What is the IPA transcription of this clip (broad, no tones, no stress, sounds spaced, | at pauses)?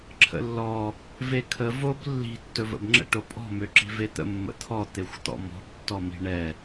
ǁʰ ə̰ lː ɔ | v e kʰ ə v o b lː i̤ tː ɵ v ə̰ b ŋ͡ǁ ə̰ ʈ o pʼ ɔ̤ m ø ǁ i̤ v e t̪ ə̰ mː ə̰ t̪ʰ ɔ t̪ e xʷ t̪ ɔ̰ m ɔ̤ b tː ɔ m i̤ ɳ ɛ